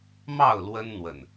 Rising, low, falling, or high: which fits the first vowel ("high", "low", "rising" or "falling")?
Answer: falling